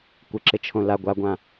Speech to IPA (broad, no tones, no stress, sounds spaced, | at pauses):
kʷ ɪ ǁ ɪ t͡ʃʰ õ l a ɡʷ a ɡʷ ã